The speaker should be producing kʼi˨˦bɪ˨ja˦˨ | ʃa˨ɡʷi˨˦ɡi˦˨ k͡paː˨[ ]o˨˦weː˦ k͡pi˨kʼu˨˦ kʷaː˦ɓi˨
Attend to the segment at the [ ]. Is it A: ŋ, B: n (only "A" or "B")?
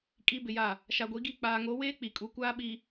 A